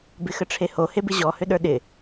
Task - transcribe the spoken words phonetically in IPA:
b ɪ x ə ʈ͡ʂʰ e h o h e b ɪ ʑ ɔ h ʏ ɗ ə˞ ɗ ɪ

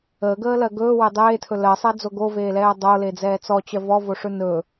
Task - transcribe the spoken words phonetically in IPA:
əː ɡ əː l ɜ ɡ ɵː w e dˤ eː tʰ ɵ l ɜ sˤ ɛ d͡z o ɡ o v eː l ɛː dˤ o l e d͡z ɛː t͡s ɔ t͡ɕ ɜ v ɔ v o ʂ ɵ n ɵ

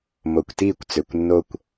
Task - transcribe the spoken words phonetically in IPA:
m o˨ kʷ t iː˦˨ kʷ t͡s ø˨ kʷ nː o˧ kʷ

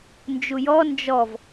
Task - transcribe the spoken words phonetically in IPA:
n d͡ʒ u j ɔ n d͡ʒ ɔ v

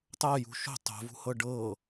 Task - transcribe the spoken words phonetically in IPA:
tˤ ɤ j ṳ ʃ o̤ tˤ o̤ v ṳ h ɤ ɖ ɤ

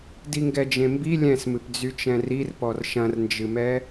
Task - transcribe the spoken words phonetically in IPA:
d i ŋ ɡ ɛ d͡ʒ ẽ m b i lʲ ɛ̃ s m ɨ p d͡z y t͡ʃ ɛ̃ r i r p ɔ r ʃ ɐ̃ r n d͡ʒ ɨ m ɛ

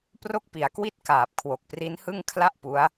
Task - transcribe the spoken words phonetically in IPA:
p r o˥˩ k̚ p i˩˦ a̯ k w i˥˩ t̚ k aː˨˩ p̚ kʰ w o˨˩ k̚ p r i˦˥ n h ɯ˥˩ ŋ kʰ l a˥˩ ʔ p u˦˥ a̯

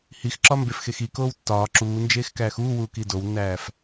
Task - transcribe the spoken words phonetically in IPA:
h i x ǁ ɒ m b e f x e x i k oː w tː ɒː ǁ uː n d͡ʒ eː x k æː x uː w uː k i d o w nː æː f

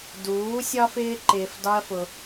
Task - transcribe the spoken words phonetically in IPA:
d uː˨˦ sʲ ɒ˧ f ɪː˧ ǃ ɪː˨ f d ɒ˦ ɐ̯ f ʊ˧

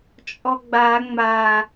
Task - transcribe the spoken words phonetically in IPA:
t͡ʃʼ ɔ ɡ͡b a ŋ͡m a

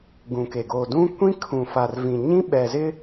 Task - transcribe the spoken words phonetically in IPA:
ɡ ũ˨ k e˨ ɡ o˨ d ũ˦ kʷ ĩ˦ kʰ ũ˨ f a˨ r v ĩ˨ ɲ ĩ˦ ɓ ɛ˨ z ɪ˦

